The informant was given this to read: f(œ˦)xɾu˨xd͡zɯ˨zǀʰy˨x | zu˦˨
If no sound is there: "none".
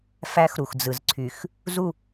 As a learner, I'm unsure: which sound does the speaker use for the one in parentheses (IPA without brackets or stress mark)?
æ˦